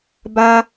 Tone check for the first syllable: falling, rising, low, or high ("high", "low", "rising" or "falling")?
high